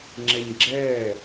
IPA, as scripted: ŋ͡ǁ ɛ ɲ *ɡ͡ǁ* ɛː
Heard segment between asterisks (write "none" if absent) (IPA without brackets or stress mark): ɡ͡ǁ